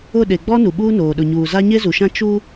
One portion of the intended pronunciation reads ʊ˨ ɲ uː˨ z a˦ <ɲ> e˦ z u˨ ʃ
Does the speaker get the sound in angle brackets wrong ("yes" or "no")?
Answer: no